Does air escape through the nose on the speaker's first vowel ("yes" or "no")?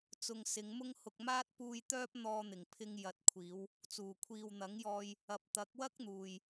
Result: no